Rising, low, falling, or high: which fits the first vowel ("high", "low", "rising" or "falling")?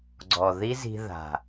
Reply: low